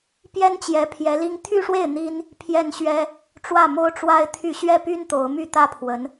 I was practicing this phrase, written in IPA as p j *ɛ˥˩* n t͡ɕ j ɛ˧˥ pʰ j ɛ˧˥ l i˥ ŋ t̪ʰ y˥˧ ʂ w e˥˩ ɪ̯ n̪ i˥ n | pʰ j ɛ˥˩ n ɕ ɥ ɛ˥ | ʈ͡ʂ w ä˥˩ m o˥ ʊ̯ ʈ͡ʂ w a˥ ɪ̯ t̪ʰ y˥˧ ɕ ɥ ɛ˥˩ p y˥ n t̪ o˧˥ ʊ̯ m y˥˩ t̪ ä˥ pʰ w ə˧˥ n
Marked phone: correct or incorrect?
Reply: incorrect